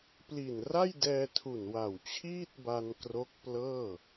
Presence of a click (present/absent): absent